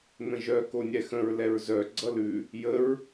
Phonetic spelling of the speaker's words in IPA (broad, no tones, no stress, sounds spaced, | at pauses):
n̪ ə̃ ʒ œ k o nʲ ɛ x ə̃ ɹ l ɛ ɹ z œ ɡ͡ǀ ʌ l ʉ | j ə ɹ